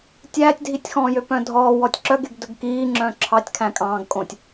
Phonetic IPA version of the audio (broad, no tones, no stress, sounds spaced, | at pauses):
tʲ æː tʲ dʱ i tʲ x ɔ̃ː j ø p œ̃ dʱ ɔː w ɔ tʲ ǁ œ ɡ e ɡ d ɵ ɡ k iː ŋ͡ǁ œ̃ ǁʰ ɑ tʲ kʰ æ̃ kʼ ɑ̃ː ɡ kʼ õ tʲ